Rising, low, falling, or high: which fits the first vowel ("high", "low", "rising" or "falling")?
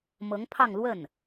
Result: rising